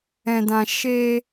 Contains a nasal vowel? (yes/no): yes